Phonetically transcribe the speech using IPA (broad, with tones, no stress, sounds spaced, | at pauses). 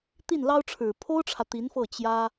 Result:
t̪ i˥˩ n l ɑ˥ ʊ̯ ʈ͡ʂʰ ɻ̩˨˩ pʰ o˥ ʊ̯ ʈ͡ʂʰ ä˨ t̪ i˧˥ n f ɤ˥˩ t͡ɕ j ä˥